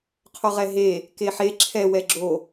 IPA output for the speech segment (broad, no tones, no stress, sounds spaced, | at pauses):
qʰ o ʁ ɛ ɦ e | k e ħ e ǁʰ ɛ w ɛ ɡ͡ǁ o